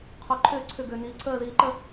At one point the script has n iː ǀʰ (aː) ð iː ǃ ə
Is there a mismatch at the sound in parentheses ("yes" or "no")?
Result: yes